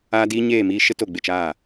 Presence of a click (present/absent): absent